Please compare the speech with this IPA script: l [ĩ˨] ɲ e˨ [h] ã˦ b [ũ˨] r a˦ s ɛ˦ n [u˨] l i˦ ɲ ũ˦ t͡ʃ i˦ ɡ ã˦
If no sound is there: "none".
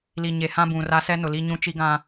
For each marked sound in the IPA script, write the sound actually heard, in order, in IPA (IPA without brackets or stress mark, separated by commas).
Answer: i˨, h, ũ˨, ʊ˨